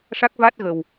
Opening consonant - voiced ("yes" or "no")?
no